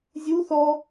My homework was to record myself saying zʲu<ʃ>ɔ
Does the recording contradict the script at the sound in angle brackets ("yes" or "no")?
yes